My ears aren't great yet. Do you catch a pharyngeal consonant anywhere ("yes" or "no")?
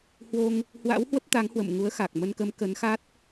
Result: no